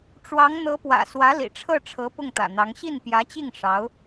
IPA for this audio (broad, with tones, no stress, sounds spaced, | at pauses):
ʈ͡ʂ w ɑ˧˥ ŋ n̪ ɤ˧˥ p w ä̰˨˩ s w ä˧˥ l ḭ˨˩ ʈ͡ʂʰ ɤ˥˩ ʈ͡ʂʰ ɤ˧˥ p ʊ˥˩ ŋ t̪ ä̰˨˩ n̪ ɑ˧˥ ŋ ɕ i˥˩ n p j ä˧˥ t͡ɕ i˥˩ ŋ ʂ ɑ˧˥ ʊ̯